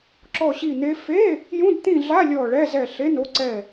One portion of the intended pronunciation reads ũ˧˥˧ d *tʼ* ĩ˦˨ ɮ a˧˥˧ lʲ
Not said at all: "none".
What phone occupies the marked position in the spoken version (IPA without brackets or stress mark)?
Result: t̪